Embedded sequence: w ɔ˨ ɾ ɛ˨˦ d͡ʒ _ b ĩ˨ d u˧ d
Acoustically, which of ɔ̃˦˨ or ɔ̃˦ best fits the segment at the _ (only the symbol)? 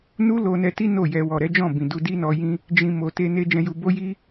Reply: ɔ̃˦˨